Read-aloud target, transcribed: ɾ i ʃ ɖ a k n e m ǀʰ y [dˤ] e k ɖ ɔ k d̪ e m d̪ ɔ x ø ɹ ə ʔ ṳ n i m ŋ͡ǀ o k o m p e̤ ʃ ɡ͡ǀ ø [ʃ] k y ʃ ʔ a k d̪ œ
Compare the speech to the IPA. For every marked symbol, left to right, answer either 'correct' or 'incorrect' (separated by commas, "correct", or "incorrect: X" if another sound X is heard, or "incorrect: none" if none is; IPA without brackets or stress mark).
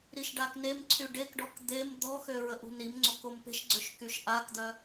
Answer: incorrect: ɖ, correct